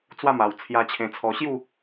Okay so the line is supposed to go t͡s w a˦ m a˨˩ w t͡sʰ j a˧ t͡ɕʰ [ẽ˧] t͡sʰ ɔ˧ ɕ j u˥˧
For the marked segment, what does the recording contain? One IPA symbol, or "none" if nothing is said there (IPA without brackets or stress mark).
ẽ˧